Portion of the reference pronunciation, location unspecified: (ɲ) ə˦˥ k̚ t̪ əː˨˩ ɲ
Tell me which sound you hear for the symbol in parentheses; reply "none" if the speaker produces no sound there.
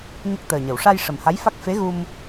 ɲ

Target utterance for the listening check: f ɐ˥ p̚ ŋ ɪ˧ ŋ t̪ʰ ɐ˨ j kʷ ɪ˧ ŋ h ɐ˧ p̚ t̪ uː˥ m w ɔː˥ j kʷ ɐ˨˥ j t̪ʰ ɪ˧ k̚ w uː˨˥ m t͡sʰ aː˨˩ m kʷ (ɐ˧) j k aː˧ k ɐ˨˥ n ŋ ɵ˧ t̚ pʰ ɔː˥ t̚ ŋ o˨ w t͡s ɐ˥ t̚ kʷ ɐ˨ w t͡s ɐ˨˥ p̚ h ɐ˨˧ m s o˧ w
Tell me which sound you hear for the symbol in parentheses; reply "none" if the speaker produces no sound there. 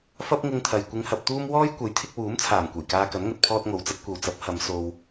ɐ˨˩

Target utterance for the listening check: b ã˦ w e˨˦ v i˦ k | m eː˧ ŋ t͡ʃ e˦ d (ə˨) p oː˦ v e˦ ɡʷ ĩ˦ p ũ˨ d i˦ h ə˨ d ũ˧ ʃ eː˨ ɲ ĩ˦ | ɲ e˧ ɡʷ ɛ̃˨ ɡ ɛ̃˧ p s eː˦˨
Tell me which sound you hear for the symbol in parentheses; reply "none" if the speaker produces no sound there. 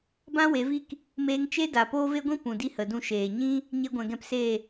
a˨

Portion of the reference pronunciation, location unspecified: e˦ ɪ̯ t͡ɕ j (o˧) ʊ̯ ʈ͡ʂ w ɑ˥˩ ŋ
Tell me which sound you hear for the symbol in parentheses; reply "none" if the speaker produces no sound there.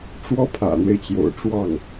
o̰˨˩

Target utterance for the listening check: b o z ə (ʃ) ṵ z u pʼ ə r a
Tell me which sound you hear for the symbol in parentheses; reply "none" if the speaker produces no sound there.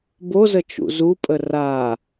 t͡ʃ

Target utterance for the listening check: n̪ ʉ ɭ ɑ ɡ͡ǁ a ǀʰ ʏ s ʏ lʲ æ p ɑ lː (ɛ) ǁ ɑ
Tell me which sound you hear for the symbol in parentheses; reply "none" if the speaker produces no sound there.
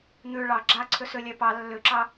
ʏ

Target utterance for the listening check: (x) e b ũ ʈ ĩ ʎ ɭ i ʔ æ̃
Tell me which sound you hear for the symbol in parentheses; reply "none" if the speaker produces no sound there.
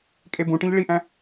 kʼ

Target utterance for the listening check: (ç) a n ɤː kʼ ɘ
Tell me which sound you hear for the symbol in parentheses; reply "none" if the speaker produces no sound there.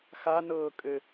x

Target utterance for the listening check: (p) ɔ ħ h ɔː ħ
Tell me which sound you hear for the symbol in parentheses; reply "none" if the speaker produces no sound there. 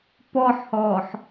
p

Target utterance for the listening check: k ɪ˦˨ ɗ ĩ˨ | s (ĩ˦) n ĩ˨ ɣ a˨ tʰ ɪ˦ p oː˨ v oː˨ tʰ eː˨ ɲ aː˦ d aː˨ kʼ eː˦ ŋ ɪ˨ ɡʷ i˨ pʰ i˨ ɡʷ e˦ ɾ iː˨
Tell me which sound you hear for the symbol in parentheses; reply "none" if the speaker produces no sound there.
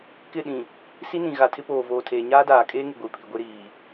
i˦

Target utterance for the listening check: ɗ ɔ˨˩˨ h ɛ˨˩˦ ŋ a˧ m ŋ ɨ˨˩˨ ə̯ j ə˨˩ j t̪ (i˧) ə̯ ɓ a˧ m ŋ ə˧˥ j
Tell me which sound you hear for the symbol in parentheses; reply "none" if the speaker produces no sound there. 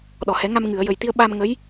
i˧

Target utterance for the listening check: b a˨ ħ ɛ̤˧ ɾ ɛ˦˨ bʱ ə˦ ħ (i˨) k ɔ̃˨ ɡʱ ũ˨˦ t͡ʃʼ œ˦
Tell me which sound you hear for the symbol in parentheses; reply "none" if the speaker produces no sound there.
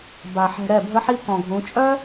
i˦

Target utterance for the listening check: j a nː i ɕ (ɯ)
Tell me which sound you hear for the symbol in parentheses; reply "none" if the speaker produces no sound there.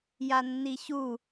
u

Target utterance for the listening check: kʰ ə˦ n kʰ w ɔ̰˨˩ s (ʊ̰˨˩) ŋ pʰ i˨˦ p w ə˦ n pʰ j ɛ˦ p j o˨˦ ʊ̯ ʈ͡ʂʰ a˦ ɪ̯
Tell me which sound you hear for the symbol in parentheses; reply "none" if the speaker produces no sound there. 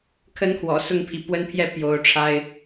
ʊ˥˨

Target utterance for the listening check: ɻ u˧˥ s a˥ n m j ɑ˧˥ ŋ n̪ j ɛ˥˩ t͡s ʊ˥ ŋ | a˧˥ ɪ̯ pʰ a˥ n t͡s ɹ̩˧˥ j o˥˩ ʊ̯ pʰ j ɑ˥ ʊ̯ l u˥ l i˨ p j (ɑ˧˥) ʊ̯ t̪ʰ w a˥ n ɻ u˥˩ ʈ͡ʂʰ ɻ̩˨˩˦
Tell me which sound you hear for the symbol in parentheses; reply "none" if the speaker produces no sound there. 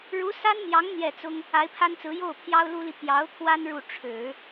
ɑ˧˥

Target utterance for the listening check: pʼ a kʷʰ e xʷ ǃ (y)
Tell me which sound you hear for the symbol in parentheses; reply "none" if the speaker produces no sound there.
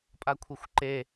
e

